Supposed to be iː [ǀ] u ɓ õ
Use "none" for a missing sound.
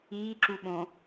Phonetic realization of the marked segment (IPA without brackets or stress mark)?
ǁ